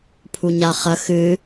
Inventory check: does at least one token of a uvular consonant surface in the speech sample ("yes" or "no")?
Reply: yes